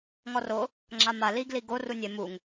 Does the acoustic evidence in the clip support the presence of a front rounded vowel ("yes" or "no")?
no